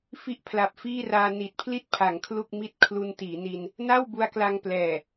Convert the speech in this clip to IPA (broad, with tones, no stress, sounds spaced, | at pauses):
f i˥˩ ʔ pʰ l a˨˩ p̚ f iː˥˩ r aː˧ n i˨˩ t̚ pʰ l i˥˩ t̚ pʰ a˩˦ ŋ kʰ l u˥˩ k̚ m i˥˩ t̚ kʰ l u˧ n t iː˩˦ n i˧ n | n a˥˩ w b u˧ a̯ k l a˧ ŋ p l ɛː˨˩